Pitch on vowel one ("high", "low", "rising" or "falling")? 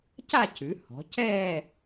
falling